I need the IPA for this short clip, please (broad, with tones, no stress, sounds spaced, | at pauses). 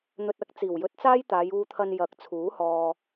n̪ ɵ˧ t̚ ɐ˥ k̚ t͡s iː˨˩ w j ɵ˧ t̚ t͡s aː˥ j t̪ aː˨˧ j uː˧ t̪ʰ ɐ˧ n j ɐ˨˥ k̚ t͡sʰ uː˨˥ h ɔː˨